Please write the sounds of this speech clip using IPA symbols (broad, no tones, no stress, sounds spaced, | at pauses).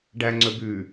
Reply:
ɖ æ ŋ͡ǀ ɵ b ʉ